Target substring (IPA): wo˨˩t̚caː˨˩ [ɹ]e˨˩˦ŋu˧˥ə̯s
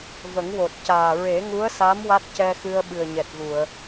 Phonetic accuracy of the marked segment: correct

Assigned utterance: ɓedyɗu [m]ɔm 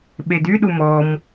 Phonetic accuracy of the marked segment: correct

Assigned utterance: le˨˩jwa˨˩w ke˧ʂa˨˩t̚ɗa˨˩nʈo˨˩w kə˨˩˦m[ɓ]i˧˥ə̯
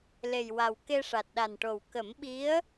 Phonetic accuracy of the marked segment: correct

